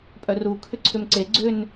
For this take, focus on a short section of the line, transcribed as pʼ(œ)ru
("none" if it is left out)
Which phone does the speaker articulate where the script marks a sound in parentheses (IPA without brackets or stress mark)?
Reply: œ